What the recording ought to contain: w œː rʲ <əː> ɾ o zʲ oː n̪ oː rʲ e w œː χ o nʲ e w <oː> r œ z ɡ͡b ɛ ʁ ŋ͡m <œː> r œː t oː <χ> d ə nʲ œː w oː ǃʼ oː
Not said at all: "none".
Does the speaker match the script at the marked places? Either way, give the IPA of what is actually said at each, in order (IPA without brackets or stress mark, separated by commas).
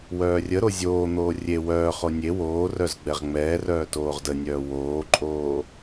ə, oː, ɛː, ʁ